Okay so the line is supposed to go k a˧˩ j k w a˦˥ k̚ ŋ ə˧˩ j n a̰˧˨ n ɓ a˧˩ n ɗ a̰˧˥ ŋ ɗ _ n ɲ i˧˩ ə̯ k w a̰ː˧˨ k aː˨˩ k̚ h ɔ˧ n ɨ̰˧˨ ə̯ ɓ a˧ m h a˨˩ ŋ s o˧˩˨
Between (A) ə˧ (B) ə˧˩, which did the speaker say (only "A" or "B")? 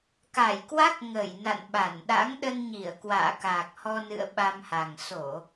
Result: A